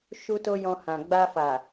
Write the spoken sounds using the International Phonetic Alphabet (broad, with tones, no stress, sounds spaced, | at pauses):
ʃ u˦ t o˦ j ɔ̃˧ h ã˨ ɡ͡b a˧ f a˨